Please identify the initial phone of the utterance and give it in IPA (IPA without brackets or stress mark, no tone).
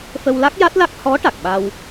f